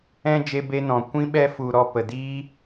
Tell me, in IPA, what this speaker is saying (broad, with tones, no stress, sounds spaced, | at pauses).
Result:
ɛ̃˧ d͡ʒ e˧ b e˧ n ɔ̃˨ kʷ ĩ˦ ɓ ɛ˦ f u˧ ɾ ɔ˧ p ə˨ d iː˦